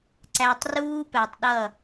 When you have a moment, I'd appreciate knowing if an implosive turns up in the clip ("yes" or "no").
yes